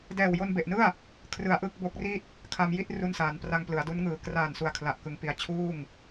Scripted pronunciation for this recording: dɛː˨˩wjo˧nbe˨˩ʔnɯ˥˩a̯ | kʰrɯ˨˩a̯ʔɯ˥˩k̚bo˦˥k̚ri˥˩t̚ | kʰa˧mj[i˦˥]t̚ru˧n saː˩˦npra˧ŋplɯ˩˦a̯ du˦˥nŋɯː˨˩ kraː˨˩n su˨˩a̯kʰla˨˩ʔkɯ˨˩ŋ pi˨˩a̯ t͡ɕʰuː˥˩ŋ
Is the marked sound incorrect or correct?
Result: incorrect